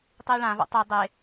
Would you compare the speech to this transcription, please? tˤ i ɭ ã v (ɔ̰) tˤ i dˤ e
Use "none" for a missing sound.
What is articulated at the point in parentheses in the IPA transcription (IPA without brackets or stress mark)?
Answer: ɔ̰